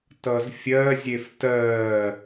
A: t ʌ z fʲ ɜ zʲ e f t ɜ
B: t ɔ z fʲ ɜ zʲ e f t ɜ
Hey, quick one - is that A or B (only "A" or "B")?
A